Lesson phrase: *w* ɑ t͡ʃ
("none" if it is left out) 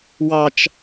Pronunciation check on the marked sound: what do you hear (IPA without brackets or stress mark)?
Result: w